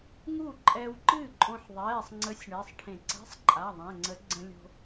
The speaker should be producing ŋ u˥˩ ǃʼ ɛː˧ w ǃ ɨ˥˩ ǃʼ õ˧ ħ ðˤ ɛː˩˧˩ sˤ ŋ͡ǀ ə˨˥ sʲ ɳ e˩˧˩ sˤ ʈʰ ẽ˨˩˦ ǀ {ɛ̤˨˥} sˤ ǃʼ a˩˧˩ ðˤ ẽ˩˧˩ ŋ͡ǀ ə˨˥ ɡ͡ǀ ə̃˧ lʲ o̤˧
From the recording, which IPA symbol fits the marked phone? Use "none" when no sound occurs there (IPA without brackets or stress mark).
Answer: ɛ̤˧˥˧